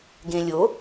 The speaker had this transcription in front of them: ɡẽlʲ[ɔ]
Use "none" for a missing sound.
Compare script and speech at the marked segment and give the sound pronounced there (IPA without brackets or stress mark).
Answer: o